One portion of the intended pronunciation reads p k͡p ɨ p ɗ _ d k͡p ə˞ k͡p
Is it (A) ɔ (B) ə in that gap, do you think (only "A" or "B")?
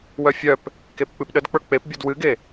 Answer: B